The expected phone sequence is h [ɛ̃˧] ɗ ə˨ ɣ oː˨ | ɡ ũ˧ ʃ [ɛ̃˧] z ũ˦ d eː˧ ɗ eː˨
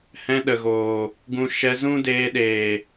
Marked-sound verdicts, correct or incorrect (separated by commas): correct, incorrect